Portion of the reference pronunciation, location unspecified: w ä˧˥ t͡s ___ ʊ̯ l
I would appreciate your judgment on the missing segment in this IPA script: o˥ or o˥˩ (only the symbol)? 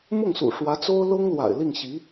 o˥